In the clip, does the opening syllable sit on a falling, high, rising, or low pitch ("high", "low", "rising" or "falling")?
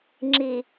low